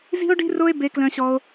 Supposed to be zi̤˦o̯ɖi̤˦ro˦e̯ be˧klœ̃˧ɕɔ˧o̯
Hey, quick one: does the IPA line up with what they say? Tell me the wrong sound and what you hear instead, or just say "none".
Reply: none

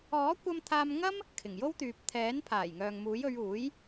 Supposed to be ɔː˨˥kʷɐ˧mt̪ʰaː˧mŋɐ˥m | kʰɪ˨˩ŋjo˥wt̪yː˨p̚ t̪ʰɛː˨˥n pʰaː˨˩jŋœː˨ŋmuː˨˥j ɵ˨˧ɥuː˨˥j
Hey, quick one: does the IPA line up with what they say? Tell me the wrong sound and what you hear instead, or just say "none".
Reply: none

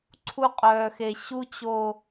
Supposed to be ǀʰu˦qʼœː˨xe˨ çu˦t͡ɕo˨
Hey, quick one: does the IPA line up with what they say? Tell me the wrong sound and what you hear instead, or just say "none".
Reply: ç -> ɕ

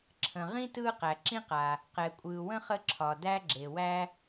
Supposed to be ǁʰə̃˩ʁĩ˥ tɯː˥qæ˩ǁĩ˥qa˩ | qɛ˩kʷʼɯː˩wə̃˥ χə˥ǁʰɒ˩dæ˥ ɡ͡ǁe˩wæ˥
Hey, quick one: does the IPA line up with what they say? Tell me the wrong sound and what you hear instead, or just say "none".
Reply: none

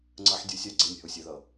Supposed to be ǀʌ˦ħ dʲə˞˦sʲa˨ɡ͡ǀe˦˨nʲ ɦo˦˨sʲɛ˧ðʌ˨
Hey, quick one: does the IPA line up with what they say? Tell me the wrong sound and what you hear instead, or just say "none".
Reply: ǀ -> ŋ͡ǀ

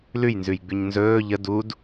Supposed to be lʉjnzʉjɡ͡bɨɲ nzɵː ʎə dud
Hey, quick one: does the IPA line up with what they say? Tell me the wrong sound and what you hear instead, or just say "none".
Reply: ɨ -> ʉ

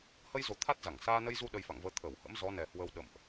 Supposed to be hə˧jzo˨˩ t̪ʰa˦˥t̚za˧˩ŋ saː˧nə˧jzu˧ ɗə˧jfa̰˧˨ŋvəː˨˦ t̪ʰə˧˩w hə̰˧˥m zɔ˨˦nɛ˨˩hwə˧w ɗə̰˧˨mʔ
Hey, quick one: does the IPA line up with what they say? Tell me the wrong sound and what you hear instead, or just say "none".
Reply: none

